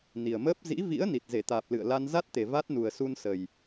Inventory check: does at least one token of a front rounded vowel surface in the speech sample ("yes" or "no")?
no